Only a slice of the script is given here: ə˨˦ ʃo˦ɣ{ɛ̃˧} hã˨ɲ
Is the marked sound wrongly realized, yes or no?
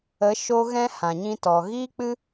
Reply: yes